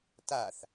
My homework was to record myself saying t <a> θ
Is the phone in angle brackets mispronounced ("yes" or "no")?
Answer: no